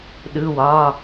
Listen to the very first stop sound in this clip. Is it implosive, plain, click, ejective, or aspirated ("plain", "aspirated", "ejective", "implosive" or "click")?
implosive